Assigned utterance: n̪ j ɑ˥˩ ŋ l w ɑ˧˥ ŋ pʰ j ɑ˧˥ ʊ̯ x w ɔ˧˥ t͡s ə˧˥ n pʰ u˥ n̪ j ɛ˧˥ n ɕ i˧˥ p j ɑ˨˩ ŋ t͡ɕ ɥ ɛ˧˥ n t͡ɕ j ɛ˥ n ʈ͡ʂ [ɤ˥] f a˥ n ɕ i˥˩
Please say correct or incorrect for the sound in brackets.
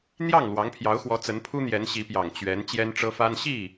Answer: correct